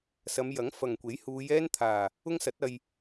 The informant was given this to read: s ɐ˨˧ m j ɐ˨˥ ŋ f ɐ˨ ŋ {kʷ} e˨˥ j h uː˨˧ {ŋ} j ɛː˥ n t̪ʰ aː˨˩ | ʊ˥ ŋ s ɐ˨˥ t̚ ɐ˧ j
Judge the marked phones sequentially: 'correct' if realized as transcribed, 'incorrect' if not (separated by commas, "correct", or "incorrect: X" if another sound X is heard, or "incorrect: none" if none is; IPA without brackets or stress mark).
correct, incorrect: none